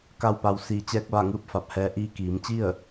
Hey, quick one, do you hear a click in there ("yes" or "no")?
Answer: no